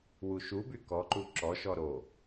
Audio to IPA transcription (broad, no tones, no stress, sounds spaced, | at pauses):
w u ʃ u b y k ɔ ǃ u ǁ ɔ ʃ ɔ ɾ o